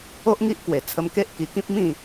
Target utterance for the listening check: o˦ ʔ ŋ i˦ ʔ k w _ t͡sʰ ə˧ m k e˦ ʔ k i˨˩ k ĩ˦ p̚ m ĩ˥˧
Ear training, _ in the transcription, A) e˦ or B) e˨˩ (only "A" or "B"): B